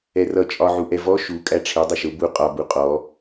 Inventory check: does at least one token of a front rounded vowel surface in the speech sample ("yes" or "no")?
no